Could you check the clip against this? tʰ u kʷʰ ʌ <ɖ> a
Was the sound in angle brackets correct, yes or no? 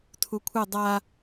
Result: no